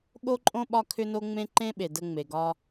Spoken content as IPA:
ɠo˦ǃʼõ˦ ɓɒ˦kʰʏ˦no˦ ŋ͡mẽ˦ǃẽ˦ɓe˨ də˧ŋ͡me˨ɡɒ˧

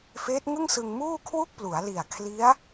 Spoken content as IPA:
feː˦˥t̚ŋɯ˥˩ŋsɯ˧ŋ muː˥˩kʰwu˥˩k̚plu˩˦a̯li˨˩a̯ kʰli˦˥a̯

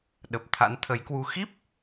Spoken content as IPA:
ɗə˨˩p̚t̪ʰa̰˧˥nt̪ʰə˨˦jkwu˧ xi˦˥p̚

